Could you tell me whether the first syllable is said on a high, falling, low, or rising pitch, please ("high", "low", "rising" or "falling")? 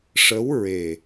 rising